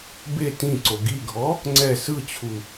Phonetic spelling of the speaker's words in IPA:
b e t ĩ ǀ o ɡ i ɡʱ ɔ | ŋ͡ǀ ɛ s ɯ t͡ɕʰ u

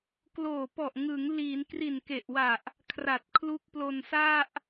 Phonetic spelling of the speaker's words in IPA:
k l oː˨˩ p ɔ˨˩ ʔ ŋ ɯ˩˦ ŋ l iː˩˦ n k r i˨˩ n k e˨˩ ʔ w a˨˩ ʔ | kʰ r a˨˩ t̚ kʰ l u˦˥ k̚ p l o˧ n s a˥˩ ʔ

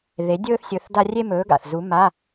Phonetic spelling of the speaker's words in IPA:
ð e˨˥ dʲ ɵː˥ θ sʲ ɵ˧˥˧ θ d a˥ rʲ e˥ m ɵː˨˥ ɡ a̰˨˩ θ z u˨˥ m a˧˥˧

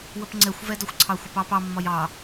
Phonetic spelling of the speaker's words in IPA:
w ə p ŋ͡ǀ ɛ xʷ v ɛ d ɒ xʷ ǀʰ ɑ xʷ ə p ɑ p ɑ mː ɒ j ɑ

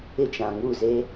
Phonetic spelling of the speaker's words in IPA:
ɪ˦ t͡ʃ ã˨ ŋ u˦˨ z e˦

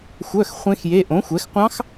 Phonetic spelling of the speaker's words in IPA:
xʷ œ˧˥˧ x χʷ ẽ˦˥ x j e˧˥˧ ʔ õ˨˥ xʷ ɛ˨˥ x qʷ ɑ̃˦˥ x

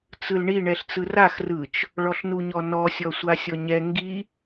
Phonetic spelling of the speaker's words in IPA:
t͡s ɯ l ɳ i ɳ ɛ ɬ t͡s ɯ r a x r ɯ t͡ʃ | ɭ ɔ ɬ n u ɲ ɔ n ɔ sʲ ɔ sʷ a sʲ ɔ ɲ ɛ ŋ ɡ i

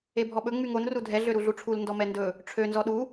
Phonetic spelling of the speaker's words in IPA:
e bʱ ɔ ɓ ɵ ŋ͡m y ŋ o n r u dʱ ɛ ɮ ø ɾ u ɮ u ʈ͡ʂʰ u l n d ɔ m ɛ n d ɵ | ʈ͡ʂʰ ø n z ɔ ɗ u

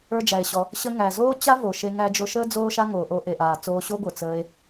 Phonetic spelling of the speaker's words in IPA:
ə˞˧ d͡ʒ æ˩ e̯ ɕ ɔ˩ | ɕ ə˧ ŋ æ˩ z oː˥ t͡ɕ a˥ v o˩ ʃ e˧ ŋ æ˧ d͡ʒ o˧ ʃ əː˥ d͡z oː˥ ʃ a˥ ŋ oː˩ ʔ o˧ ʔ e˩ ʔ aː˩ t͡s oː˧ ɕ o˥ ɡʷ ə˞˩ t͡s əː˧ e̯

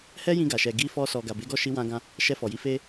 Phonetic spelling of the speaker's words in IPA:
h ɛ˦ j ĩ˧ ɡ a˨ ʃ ɛ˨ ɡ i˧ f ɔ˧ s ɔ˨ ɡ a˨ b e˨˦ ɡ ɔ˦˨ ʃ i˧ w ã˧ ɡ ã˦ | ʃ ɛ˧ f ɔ˨ j i˧ f e˦

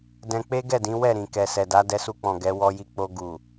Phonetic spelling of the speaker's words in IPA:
d ɛ̃˧ k͡p e˦ ɡ ɛ˦˨ d ĩ˨˦ w ɛ˦˨ ɾ ĩ˨ k ɛ˨ s ɛ˨ d a˨˦ d ɛ˧ s u˧ k͡p ɔ̃˨ ɡ ɛ˨˦ w ɔ˧ j i˧ k͡p o˧ ɡ u˨

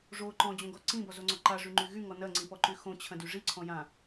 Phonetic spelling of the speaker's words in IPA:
ʐ o ǃ ɔ̃ d͡ʑ õ ɡ ɔ ǀ ĩ b ɔ z o ŋ͡ǀ ɔ ǃ a ʐ y ŋ͡ǃ y ɣ y ŋ ɔ n ɐ ŋ͡ǀ ĩ p ɔ ǃ y x õ t͡ɕʰ ɐ̃ d y ʐ i ǀʰ ɔ̃ j ã

